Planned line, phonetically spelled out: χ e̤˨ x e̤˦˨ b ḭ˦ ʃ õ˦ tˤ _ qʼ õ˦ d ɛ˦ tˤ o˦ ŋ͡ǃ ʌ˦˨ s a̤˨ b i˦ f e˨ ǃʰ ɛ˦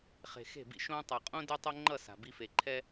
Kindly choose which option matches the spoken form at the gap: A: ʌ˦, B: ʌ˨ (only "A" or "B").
B